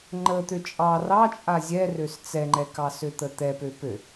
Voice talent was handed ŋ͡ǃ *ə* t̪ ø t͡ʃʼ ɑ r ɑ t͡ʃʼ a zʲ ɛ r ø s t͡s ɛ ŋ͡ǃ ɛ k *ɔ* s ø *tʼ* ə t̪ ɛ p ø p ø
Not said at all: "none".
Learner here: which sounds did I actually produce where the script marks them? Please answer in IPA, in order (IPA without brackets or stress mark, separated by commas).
ə, ɑ, t̪